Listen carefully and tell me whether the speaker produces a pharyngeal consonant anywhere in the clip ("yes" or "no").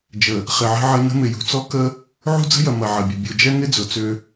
yes